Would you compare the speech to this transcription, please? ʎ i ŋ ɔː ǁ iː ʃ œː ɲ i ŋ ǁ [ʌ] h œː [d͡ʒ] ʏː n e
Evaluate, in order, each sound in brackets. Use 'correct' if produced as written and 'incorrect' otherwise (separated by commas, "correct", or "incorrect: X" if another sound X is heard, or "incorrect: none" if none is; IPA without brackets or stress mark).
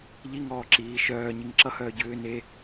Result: correct, incorrect: ɟ